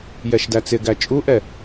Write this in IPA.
j ɛ ʃ d æ t͡s ɪ ɡ æ t͡ʃʼ u ʔ ɛ

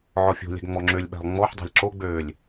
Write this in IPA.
ʕ ɔ fʲ o̤ lʲ æ̤ ɡ ŋ͡m ɔ ŋ͡ǁ ø lʲ ɓ æ̤ lˠ ŋ͡m ɔ ħ dˤ a̤ lʲ ǁ o ɡ͡b øː lʲ

